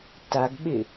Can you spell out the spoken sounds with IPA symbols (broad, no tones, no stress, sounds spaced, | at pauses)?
t a ɡ ɓ ɪ